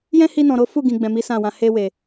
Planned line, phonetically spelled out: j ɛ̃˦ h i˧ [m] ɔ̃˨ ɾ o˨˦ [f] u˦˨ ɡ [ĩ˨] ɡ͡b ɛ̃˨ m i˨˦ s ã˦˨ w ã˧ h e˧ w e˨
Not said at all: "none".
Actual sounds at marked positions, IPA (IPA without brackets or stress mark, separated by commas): n, f, ĩ˨